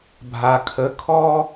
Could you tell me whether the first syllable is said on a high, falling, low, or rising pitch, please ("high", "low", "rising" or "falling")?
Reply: low